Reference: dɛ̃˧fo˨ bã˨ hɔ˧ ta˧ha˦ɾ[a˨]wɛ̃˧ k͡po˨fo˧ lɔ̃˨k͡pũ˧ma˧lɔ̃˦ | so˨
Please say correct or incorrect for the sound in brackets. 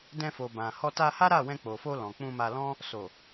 incorrect